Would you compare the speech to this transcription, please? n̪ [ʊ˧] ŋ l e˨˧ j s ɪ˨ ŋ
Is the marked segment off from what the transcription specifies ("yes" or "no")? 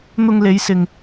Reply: no